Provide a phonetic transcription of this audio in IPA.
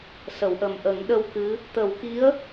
sə˨˩˨wʔə˨˩mʔə˨˩˦ŋ ɗə˧wkɨ˧˥ | t̪ə˨˩˦wki˧˥ə̯

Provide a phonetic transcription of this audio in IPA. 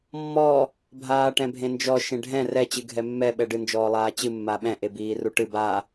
mːɔ | bʱaːʈɛ̃bʱẽnd͡ʒɔ ʃẽɖʱɛ̃ rɛ t͡ɕɨɡʱɛmːɛ ɓɛɖɨ nd͡ʒɔːlˠaːt͡ɕɨ mːaɓɛ̃ ʔebiːruʈɨ ba

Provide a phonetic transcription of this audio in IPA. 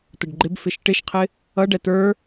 t̪əɖɡ͡ǃɪbfɪʃ ʈɪʃqʰɪ | ʌɖɛ t̪ə˞

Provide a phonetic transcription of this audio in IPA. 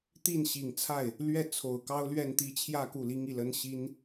t̪i˥˩nɕi˨˩ŋt͡sʰa˥˩ɪ̯ | lɥɛ˥˩ t͡sʰo˨˩ʊ̯ kɑ˥ʊ̯lɥɛ˥˧nt̪i˥˧ t͡ɕʰjä˥˧ ku˥˩li˥ŋi˥˩lə˥n ɕi˥n

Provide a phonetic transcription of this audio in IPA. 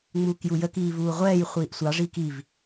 ŋ͡muːkjujəkiː vuːʁʷɛːjχʷiːʔ sʷɑʐiːk iv

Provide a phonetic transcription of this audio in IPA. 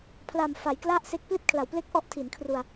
pʰla˨˩m fa˩˦j kla˥˩ʔse˦˥k̚ pli˥˩t̚kʰla˩˦wple˥˩k̚ ʔɔ˦˥ʔtʰi˩˦nkʰru˧a̯

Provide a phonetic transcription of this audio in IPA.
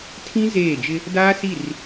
tʰĩ˦ zeː˦˨d͡ʒɪ˦ | daː˦si˦˨r

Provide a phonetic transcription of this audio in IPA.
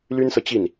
ly˥nsɤ˨t͡ɕi˥˩n

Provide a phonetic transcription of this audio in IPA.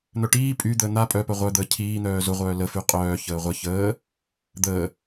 n̪œʈiː pʼy d̪əːn̪a pʼœpœ ʁʷœd̪əː cʰiː n̪œːzʊ ʁʷœːləfy qʼœː çəːʁʷə çəː | d̪əː

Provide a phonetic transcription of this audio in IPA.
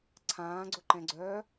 ǀʰãːɡ͡ǀʊǃɛ̃ɡ͡ǀœː

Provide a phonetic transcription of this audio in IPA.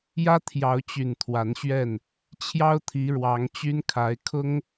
jä˦t̪ʰjɑ˨˦ʊ̯t͡ɕy˨˩n t̪ʰwa˨˦nɕɥɛ˥˨n | t͡ɕʰjɑ˦ʊ̯ t̪ʰi˨˦ɻwɑ˨˦ŋ t͡ɕy˦nkʰa˨˦ɪ̯ kʰʊ˦ŋ

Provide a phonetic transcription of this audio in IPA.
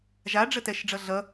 ʒaɖ͡ʐə tɛʃɖ͡ʐʌɮʌ

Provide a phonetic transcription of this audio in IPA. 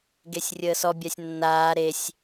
ɡesʲrʲəːsɔ bʲasʲnːaː ɾesʲ

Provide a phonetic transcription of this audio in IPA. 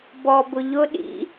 bɔ bʊʎʊ ɗḭ

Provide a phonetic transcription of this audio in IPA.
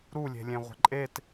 ɾulʲe̤lʲẽʁʷə̤ ǃʼet

